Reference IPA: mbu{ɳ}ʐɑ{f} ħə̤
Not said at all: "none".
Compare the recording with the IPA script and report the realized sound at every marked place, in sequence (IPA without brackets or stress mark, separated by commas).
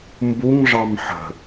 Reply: ŋ, m